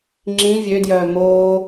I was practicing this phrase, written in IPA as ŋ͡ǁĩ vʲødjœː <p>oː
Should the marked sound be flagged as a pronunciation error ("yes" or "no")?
yes